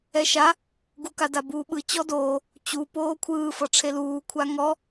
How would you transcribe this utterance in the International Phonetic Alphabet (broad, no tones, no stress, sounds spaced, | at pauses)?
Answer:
ɛ ʃ a | ɡ u k a d a b uː ɓ ɯ t͡ɕ ɔ d oː | t͡ɕ u p oː kʷʰ ɯː f ɤ ʈ͡ʂʰ e l uː kʷʰ a ŋ ɔ